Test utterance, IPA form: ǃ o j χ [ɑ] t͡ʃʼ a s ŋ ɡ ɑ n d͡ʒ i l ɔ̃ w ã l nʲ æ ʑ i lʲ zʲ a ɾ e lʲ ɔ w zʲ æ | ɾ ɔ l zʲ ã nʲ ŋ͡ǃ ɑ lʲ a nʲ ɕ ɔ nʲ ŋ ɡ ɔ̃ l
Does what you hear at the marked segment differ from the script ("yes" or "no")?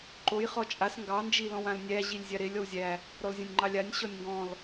yes